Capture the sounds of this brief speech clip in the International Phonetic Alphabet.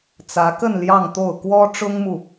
t͡s ä˧˥ k ə˥˧ n l j ɑ˥˧ ŋ t̪ o˥˩ ʊ̯ k w ɔ˥ ʈ͡ʂ ʊ˥ ŋ m u˨

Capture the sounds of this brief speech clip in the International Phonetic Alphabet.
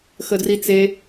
x ə d r i t͡s e

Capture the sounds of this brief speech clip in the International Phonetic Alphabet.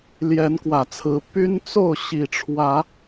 l j ɛ˨˦ n k w ä˨˩ t͡sʰ ɹ̩˨˦ p y˦ n t͡s o˥˨ ʊ̯ ɕ i˨˩ ʈ͡ʂʰ w ä˨˦

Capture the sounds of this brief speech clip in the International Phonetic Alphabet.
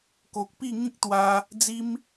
k o˨ k̚ p i˥˧ ŋ ĩ˦ k̚ t̪ w a˧ | d͡z i˧ m

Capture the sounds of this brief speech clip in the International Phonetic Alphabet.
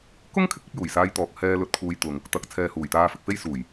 k ʊ˥ ŋ kʰ ɪ˨˥ k̚ ɐ˧ p̚ j uː˨˩ j s aː˧ j t̪ ɔː˨ k̚ h ɛː˧ l ɵ˧ t̚ kʰ uː˧ j t̪ ʊ˨ ŋ | t̪ ɐ˨ k̚ t͡sʰ ɛː˨ h uː˨˩ j t̪ aː˧ f ɪ˨ k̚ f e˥ j s uː˨˩ j

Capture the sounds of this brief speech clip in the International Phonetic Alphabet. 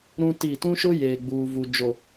ɾ ũ˦ t i˦˨ t ũ˦ ʃ ʊ˦ j eː˨ ɡ͡b uː˨ v u˨ d͡ʒ o˨

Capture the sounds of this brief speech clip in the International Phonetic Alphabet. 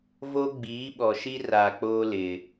v o˦ ɡ͡b iː˨˦ ɓ ɔ˨ ʃ i˦ r a˨ k͡p oː˦ l ɪ˨

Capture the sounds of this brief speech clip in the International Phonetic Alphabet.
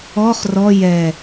ɔ χ r ɔ j ɛ

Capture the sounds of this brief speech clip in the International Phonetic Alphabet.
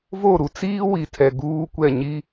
v o˦˨ ɾ u˨ t͡s iː˦ w i˨ tʰ ɛ˨ ɡ uː˦ kʷ ɛ˦˨ ɲ i˦

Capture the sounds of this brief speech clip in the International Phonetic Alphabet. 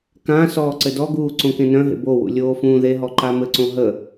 k ã s ɔː ǀ ɘ d ɔ ɡ uː ǀ õ k ẽ n œ̃ ɦ ḛ b o w ṵ lʲ oː f ũː ð e ɦ ɔ ǃ a m ɘ ǀ õ ɦ ə

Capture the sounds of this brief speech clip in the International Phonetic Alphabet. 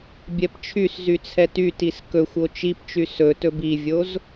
bʲ ɛ p t͡ʃʰ y s z y t͡sʰ ɛ t y t i s k ɵ xʷ o t͡ʃ i p t͡ʃ y s ɵ t ɵ b i vʲ o z

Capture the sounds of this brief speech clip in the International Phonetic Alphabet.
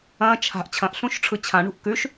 ɐ̃ t͡ʃʰ a̤ ʔ t͡ɕʰ ɐ̃ ʔ ɬ ũ ʃ ʈ͡ʂʰ ɯ t͡ɕʰ ã ɳ ṳ ʔ k ʉ ʃ

